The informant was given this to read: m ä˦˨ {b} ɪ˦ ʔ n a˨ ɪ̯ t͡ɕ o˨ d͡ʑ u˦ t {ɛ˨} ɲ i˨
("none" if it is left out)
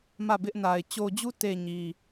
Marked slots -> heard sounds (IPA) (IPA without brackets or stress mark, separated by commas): b, e˨